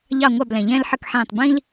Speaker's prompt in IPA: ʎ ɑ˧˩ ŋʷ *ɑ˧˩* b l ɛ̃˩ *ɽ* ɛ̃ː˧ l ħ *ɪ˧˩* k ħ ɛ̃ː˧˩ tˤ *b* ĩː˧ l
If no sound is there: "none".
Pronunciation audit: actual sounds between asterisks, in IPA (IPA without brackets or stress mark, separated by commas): ɑ˧˩, ʎ, ə˧˩, b